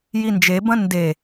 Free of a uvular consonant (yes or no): yes